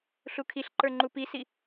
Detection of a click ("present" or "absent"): present